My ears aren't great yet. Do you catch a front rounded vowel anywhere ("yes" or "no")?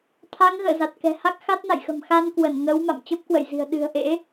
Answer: no